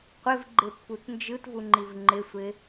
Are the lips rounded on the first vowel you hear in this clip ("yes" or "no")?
no